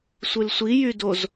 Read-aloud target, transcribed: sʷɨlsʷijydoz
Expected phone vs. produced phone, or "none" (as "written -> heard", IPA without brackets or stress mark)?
none